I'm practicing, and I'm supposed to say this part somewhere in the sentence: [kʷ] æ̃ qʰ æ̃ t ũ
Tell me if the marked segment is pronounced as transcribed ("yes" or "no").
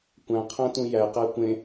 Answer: yes